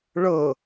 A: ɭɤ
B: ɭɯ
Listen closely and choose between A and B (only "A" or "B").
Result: A